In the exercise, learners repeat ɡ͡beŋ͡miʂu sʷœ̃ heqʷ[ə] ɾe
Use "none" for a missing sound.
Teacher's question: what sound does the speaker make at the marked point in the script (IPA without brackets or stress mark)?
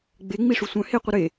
ə